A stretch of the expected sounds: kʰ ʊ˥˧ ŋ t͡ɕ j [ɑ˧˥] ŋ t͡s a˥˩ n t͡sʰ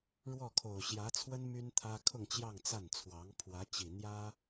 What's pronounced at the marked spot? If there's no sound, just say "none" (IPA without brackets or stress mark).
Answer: ɑ˥˧